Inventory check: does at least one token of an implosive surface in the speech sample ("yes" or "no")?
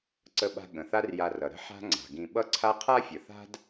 yes